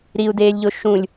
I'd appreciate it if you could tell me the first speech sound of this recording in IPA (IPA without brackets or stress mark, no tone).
ɾ